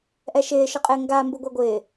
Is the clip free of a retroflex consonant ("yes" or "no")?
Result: yes